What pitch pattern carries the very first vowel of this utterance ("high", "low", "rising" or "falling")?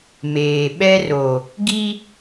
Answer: low